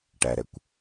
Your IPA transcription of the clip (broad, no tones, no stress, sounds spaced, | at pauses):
ʈ æ ɾ ɛ kʷ